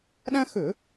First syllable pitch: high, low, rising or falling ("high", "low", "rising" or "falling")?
high